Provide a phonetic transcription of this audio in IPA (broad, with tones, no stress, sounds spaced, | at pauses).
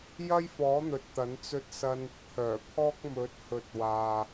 j ɐ˥ j f ɔː˨˥ n̪ ɵ˨ t̚ t̪ ɐ˨˥ n t͡s ɵ˥ t̚ s ɐ˥ n | kʰ œː˨˩ pʰ ɔː˥ k̚ m ɵ˨˥ t̚ h ɵ˨˥ t̚ w aː˨